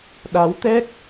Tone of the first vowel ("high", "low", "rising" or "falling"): rising